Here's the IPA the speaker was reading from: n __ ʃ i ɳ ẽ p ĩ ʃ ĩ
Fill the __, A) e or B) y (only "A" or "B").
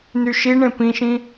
B